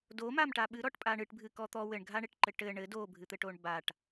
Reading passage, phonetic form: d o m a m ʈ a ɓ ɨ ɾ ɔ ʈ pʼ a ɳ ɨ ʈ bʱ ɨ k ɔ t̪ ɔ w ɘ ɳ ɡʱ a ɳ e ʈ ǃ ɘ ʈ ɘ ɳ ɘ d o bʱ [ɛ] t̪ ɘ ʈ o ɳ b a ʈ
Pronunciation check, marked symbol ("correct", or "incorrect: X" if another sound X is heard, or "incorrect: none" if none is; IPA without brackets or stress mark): incorrect: ɨ